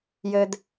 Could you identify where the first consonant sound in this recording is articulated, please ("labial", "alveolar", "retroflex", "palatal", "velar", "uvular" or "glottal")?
palatal